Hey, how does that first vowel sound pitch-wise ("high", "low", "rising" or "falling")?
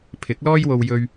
rising